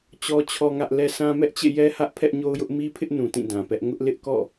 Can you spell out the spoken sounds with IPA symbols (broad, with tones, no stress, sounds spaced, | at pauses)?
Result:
t͡ɕ ɔ˦ t͡ɕʰ ɔ˦ ŋ ä˦ ʔ l ɛ˦ sʰ ã˦ m ɛ˦ ʔ t͡ɕ ḛ˦˨ j ɛ˦ h ä˦ ʔ pʰ ɛ˦ ʔ ɲ o˦ ʊ̯ j ʊ˦ ʔ m i˦ pʰ ɪ˦ ʔ n ũ˨ t ĩ˦˨ d ã˨ p ɛ˦ ʔ ŋ ʊ˦ ʔ l ɪ˦ ʔ k ɔ̰˦˨